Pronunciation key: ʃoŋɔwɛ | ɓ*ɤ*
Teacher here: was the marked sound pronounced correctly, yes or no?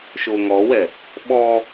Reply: no